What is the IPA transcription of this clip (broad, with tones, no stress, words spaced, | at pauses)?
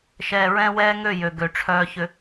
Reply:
ʃɛː˨ɹɛ̃˦wɛː˦ ŋø˦˨jø˨ ɡø˨ʈ͡ʂʰœː˦çʏ˦